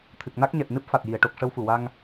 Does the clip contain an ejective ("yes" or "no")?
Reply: no